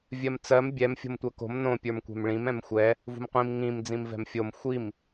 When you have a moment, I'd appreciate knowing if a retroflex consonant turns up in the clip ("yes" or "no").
yes